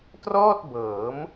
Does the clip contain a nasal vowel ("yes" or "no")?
no